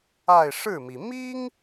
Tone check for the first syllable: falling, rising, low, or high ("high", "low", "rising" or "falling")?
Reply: falling